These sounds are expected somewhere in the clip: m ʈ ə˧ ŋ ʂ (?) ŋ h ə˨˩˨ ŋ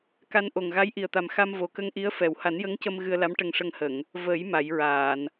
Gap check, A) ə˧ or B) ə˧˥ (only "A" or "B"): A